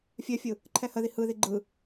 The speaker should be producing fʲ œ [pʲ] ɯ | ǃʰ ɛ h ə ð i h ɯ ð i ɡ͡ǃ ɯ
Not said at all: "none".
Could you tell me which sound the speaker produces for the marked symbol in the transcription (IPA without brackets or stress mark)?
fʲ